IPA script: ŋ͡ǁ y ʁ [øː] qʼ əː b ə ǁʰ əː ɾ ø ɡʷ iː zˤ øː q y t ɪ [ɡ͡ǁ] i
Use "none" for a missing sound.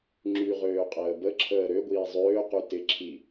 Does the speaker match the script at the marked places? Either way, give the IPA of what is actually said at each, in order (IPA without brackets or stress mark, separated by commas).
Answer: øː, ǁʰ